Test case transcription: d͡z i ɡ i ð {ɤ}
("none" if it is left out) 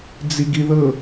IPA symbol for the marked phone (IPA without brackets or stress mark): ɤ